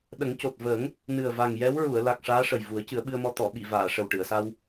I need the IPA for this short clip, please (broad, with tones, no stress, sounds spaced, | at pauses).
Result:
ɗ ə˨˩˦ ŋ c o˨˩ t̚ v əː˨˩˦ ŋ | n ɨ˨˩ ə̯ v a˨˩ ŋ j ɛ˧˥ w ɹ u˨˩˨ ə̯ l a˨˩ k̚ ʂ aː˧˥ ʂ ə˨˩ j v u˨˩˦ ə̯ c ɨ˨˩˦ ə̯ ɓ ɨ˧ ə̯ m ɔ˧ t̪ ɔ˨˩˨ ɓ i˨˩˨ v aː˨˩˨ ʂ ə˨˩ w ʈ ɨ˨˩˨ ə̯ s a˧ w